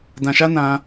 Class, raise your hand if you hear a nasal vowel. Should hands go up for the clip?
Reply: yes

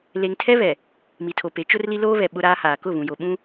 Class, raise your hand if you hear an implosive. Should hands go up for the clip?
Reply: yes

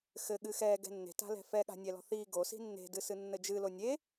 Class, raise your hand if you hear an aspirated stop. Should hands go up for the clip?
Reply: no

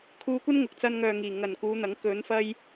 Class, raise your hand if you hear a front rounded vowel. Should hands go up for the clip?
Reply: yes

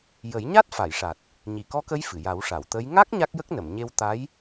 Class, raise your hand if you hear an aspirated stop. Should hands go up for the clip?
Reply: no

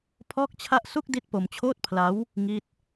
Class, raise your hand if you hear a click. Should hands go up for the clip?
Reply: no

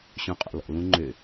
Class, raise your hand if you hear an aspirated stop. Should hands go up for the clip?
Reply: no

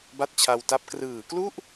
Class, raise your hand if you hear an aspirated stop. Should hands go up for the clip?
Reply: yes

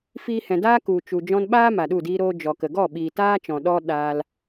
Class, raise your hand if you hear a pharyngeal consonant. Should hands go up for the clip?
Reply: no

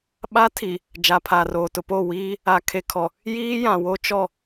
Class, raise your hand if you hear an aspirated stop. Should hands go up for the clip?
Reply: yes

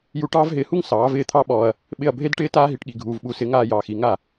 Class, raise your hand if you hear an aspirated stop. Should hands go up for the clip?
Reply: yes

